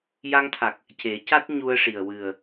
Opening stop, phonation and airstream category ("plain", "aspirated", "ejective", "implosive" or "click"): aspirated